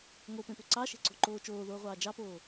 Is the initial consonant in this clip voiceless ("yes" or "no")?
no